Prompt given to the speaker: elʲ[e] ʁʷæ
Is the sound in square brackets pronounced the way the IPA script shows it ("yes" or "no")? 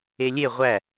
yes